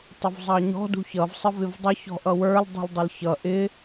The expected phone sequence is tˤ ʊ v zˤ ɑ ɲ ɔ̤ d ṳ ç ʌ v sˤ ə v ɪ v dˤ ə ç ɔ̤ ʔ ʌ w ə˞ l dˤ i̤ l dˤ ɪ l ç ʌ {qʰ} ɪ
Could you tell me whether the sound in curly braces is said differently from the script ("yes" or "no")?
yes